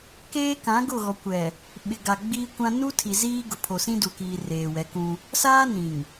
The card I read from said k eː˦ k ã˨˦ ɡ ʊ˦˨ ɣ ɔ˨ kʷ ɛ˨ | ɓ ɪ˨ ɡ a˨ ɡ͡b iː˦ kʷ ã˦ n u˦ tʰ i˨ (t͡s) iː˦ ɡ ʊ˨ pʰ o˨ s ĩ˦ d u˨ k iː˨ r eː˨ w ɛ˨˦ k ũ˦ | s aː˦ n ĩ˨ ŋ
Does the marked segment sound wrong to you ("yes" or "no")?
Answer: yes